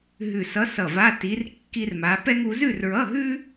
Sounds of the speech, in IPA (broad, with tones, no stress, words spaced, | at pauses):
ɦʉ˧˩sʌ˧˥sʌ˧˩va˧˥˧ ti˧˥rkːi˥rma˧˥ pɛ˥ŋu˧˥ zʉ˥˧rɹʌ˧˥˧ɦʉ˥